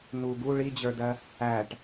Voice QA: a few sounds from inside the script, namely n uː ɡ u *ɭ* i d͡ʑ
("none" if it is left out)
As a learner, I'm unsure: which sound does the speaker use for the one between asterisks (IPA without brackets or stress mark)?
ɭ